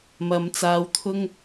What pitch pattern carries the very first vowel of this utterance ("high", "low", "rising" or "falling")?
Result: low